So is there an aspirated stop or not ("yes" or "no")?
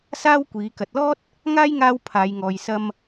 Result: yes